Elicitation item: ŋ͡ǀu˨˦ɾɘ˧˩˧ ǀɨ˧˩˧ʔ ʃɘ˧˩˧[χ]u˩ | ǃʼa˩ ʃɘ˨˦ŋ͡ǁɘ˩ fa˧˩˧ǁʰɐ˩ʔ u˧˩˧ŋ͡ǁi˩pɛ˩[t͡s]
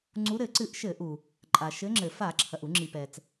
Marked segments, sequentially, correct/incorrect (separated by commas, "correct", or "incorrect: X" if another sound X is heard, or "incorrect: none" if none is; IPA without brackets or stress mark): incorrect: ʔ, correct